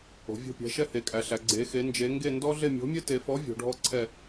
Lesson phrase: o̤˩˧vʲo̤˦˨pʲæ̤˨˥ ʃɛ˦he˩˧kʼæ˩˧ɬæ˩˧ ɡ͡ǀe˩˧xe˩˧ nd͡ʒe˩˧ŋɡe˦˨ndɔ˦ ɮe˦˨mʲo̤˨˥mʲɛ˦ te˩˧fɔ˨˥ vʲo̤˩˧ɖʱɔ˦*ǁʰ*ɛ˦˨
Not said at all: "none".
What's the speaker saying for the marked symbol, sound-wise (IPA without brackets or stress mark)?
ǀʰ